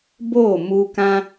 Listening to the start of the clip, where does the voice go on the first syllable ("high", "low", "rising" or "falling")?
falling